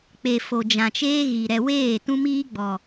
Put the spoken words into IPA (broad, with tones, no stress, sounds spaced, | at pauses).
k͡p e˨ f o˨ d͡ʒ ã˨ t͡ʃ eː˦ ɣ i˨ ɾ ɛ˨ w eː˦˨ t ũ˦ m iː˦ ɡ͡b ɔ˨